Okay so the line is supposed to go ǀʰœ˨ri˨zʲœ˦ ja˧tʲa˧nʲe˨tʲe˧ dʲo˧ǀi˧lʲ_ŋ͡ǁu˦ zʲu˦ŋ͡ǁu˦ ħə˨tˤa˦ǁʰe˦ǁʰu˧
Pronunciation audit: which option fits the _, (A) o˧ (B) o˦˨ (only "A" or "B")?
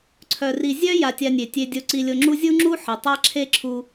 A